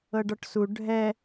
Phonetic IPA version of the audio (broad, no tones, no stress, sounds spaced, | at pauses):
ɤ ɖ ɔ ʈ s u ɖʱ ɛ